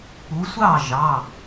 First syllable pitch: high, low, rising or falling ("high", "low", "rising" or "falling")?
rising